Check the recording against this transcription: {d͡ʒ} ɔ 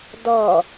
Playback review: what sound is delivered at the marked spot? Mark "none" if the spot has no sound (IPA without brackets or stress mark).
d